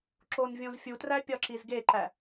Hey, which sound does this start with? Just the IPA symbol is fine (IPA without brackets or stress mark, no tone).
ǁ